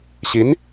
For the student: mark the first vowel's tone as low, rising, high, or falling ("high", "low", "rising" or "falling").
rising